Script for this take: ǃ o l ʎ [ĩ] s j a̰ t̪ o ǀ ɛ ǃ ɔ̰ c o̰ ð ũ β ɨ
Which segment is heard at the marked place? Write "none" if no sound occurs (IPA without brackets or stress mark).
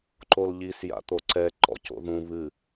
i